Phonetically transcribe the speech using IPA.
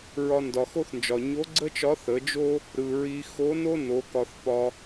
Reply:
ɹ ɒ˧ n d ɒ˩ x o˥ θ n d͡ʒ ɒ˩ ɲ o˧˥ ɡ͡ǀ ə˥ t͡ʃ ɒ˧˥ θ ə˩˧ d͡ʒ o˥ | ɾ ɯ˩ ɹ i˧ x o˧˥ n o˥ n o˩˧ k ɒ˧ θ p ɒ˧

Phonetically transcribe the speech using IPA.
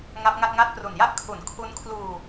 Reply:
ŋ a˦˥ p̚ ŋ a˥˩ t̚ ŋ a˥˩ t̚ p r u˨˩ n j a˥˩ ʔ kʰ u˩˦ n kʰ u˦˥ n kʰ l uː˧

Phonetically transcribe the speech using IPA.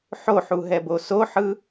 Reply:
ħ o ħ u ɦ ɛ b o s o ħ ɯ

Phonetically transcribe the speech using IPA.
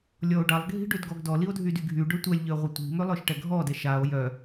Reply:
lʲ ɔ o̯ ɖ a lˠ ɡʱ i̤ ɖ ø d ɡ ɔ ɡ d ɔ l i o̯ dʱ y d y ɡʱ y ɖ ø tʷ ɛ lʲ ʎ ø ʁʷ ə tʷ i̤ m ø lˠ œ ʃ ʈ ɛ ɡʱ ɔ d ɛ ʃ a o̯ j œ

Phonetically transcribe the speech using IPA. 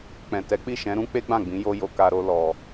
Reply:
k͡p ɛ̃˨ t ɛ˨˦ k͡p i˦˨ ʃ ɛ̃˨˦ ɾ ũ˦ k͡p e˦ ɡ͡b ã˦˨ ɡ͡b ĩ˨˦ j o˦ j o˧ k a˧ ɾ o˦ l ɔ˧

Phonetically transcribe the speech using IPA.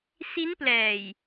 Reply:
s i˦˥ n p l ɛː˨˩ j

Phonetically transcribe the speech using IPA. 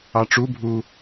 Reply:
ɑ ʈ͡ʂ u bʱ u

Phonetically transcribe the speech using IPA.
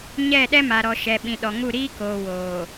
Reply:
ɲ ɛ˦˨ ɗ ɛ˦ m a˨ ɾ ɔ˨ ʃ ɛ˨ ɓ ĩ˨ ɗ ɔ˨ ŋ u˦˨ ɾ iː˦ k oː˨ w oː˨

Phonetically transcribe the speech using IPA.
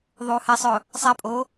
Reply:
ðˤ uː h e sˤ ʊː | sˤ ɛ pʼ oː

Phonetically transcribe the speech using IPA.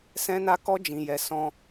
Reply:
s ɛ̃˦ n a˦ k ɔ˦ d͡ʒ ĩ˧ j ɛ˧ s ɔ̃˧

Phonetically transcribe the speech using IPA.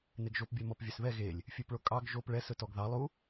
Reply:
n e ɡ ʒ o p bʲ œ m ɔ p vʲ ø s β ɛ ɣ e lʲ | fʲ ʉ p ɭ o kʼ ɑ ɡ ʒ o p ɭ ɛ s ɵ t ɔ ɡ ð ɑ lˠ u

